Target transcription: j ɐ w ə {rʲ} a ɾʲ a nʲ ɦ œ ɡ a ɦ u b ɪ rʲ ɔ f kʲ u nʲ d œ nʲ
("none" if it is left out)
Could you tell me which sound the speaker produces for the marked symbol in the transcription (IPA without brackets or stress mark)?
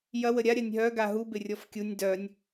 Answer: ɾʲ